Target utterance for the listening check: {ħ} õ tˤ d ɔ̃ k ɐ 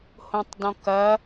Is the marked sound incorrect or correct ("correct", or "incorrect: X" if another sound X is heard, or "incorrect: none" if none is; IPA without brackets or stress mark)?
incorrect: h